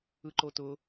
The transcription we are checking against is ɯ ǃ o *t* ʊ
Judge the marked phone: correct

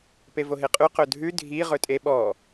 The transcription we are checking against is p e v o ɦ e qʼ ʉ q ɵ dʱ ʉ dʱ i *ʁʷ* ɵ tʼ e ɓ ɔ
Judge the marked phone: incorrect: ʁ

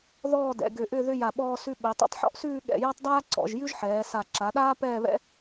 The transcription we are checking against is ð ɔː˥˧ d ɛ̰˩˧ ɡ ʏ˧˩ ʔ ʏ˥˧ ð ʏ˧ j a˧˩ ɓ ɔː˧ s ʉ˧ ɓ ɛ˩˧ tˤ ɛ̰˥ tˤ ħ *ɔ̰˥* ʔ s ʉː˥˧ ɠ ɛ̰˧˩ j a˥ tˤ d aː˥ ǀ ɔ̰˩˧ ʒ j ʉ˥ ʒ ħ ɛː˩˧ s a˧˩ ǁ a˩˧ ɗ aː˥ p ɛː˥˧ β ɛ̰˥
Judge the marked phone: correct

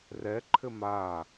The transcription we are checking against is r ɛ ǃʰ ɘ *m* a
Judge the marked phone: correct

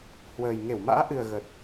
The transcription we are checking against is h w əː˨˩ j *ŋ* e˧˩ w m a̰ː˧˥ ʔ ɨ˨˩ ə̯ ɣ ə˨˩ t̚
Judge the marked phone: correct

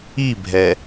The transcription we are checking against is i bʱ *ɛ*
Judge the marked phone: correct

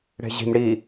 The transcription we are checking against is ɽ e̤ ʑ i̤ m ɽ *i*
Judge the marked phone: correct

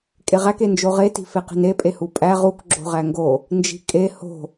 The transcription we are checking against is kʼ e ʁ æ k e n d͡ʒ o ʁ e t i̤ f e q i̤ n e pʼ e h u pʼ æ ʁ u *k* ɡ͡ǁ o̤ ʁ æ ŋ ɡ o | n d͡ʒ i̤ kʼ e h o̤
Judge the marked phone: correct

